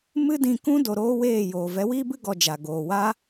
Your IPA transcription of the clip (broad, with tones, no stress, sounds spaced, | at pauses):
m ɨ˦ d ĩ˧ k ũ˦ d o˧ ɾ oː˦ w eː˦˨ j oː˨ v ɛ˨˦ w iː˦ b ɨ˦ ɡ ɔ˧ d͡ʒ a˨ ɡ oː˨ w a˦